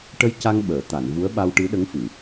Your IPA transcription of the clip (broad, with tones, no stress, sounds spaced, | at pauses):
ʈ ə˧ j c a˧ ŋ ɓ əː˨˩˨ t̪ a˨˩˨ n v u˧˥ ə̯ ɓ a˧ w ʈ ɨ˧˥ ɗ ə˧˥ ŋ f ɨ˨˩˨